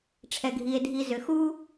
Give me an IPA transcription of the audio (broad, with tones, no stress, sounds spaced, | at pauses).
ʈ͡ʂʰ ɛ˩ ɡʱ i˩ e̯ dʱ i˩ z ʏ˩ x u˥